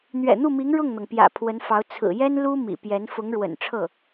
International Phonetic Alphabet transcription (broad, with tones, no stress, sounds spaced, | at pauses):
n̪ ɥ ɛ̰˨˩ n̪ u˥˩ m i˧˥ ŋ ɻ ʊ˥˩ ŋ n̪ ɤ˩ ŋ p j ä̰˨˩ pʰ w ə˧˥ n f ɑ˧˥ ʊ̯ t͡sʰ ɹ̩˨˩ j ɛ˥ n l u˥ m ḭ˨˩ p j ɛ˧˥ n f ʊ˧˥ ŋ ɻ w ə̰˨˩ n ʈ͡ʂʰ ɤ˥˩